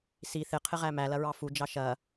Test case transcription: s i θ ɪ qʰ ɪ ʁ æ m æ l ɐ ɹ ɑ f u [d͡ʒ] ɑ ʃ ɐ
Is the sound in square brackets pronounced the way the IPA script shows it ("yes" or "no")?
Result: yes